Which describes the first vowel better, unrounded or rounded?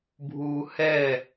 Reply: rounded